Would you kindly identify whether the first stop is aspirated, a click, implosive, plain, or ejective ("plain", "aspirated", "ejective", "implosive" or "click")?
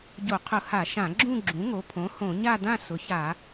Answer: plain